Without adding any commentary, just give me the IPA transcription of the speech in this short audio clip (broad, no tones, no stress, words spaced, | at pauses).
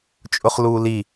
t͡ʃʼʊχluːli